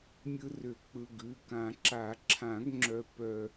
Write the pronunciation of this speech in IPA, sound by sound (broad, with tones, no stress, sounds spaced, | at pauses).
mʲ ɯ˧ r ʏ˨˩˦ k͡p ɯ˩˧˩ ɡ ʉ˩˧˩ k ã˨˩˦ ǁ a˨˩˦ ǁʰ ã˨˩˦ ɡ ŋ͡ǁ œ˧ p œ˧